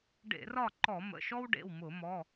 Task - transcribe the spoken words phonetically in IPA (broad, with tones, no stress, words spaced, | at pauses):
ɖḛ˧˩˧rɒ˦˨ ǃɔ˧˩˧mə̰˩˧˩ʃɔ˥w ɖḛ˩˧˩wmʊ˧˩˧mɔ˩˧˩